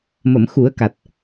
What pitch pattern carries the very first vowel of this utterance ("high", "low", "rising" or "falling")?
low